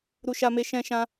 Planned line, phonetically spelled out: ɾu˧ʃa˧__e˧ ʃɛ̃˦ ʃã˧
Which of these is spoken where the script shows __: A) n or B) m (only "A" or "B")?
B